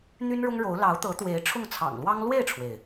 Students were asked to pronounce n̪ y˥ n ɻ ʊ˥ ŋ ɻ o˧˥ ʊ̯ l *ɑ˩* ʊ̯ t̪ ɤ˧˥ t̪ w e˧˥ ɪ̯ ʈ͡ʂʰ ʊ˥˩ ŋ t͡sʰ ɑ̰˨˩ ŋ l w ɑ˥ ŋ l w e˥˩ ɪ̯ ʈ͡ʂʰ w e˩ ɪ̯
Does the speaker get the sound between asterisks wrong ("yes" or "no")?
yes